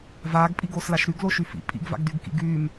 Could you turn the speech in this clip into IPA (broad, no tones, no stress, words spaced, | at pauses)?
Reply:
vaːɡpʼiɡoːslaʃ ɾyɡloʃy fḭ pʼḭɡva̰ɡdyɡkḭ ɡyːm